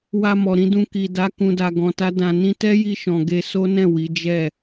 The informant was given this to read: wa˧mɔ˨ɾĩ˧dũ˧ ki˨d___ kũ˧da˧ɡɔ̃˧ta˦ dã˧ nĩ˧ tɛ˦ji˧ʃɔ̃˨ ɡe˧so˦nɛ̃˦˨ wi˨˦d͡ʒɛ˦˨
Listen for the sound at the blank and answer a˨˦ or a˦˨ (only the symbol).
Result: a˨˦